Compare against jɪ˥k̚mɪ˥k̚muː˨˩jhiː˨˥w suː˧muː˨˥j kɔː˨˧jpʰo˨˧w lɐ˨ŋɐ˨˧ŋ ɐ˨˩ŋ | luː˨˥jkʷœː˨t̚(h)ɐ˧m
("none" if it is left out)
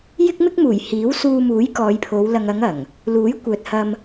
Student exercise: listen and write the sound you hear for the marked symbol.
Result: h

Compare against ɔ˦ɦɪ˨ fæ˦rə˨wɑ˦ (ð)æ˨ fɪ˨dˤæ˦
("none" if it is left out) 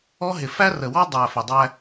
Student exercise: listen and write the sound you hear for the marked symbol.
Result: dˤ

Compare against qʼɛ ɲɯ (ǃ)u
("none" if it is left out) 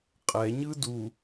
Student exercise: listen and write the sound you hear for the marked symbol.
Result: d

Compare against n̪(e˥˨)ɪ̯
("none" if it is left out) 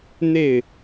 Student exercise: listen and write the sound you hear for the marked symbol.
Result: e˥˨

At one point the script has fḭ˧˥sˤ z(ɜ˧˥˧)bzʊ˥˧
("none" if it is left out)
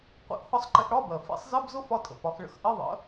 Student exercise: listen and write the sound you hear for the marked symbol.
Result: ɜ˧˥˧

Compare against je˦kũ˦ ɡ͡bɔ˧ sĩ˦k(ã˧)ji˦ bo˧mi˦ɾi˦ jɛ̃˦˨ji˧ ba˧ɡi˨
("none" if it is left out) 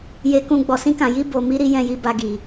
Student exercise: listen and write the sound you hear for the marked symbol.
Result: ã˧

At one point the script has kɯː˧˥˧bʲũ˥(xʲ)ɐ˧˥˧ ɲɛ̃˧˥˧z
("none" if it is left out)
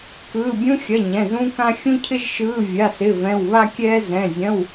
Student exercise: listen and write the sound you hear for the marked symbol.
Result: xʲ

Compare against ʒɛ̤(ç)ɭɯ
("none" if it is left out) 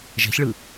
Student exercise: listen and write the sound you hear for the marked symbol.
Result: ç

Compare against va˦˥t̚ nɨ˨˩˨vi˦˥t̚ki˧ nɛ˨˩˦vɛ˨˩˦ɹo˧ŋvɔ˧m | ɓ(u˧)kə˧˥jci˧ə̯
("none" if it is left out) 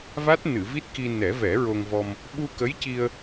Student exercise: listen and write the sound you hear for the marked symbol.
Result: u˧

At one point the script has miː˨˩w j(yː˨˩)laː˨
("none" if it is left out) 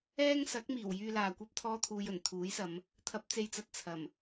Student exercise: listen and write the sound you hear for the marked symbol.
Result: yː˧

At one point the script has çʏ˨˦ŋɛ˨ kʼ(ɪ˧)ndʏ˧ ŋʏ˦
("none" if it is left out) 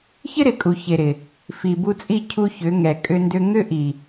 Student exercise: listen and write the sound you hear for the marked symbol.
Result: ʏ˧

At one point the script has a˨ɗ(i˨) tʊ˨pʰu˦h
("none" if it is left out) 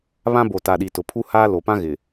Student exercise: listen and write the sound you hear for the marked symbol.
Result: i˨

